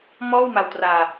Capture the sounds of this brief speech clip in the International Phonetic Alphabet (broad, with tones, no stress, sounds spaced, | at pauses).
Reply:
m ɔː˥˩ w m a˧ w t r aː˧